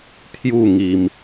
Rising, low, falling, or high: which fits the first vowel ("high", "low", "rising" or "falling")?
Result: falling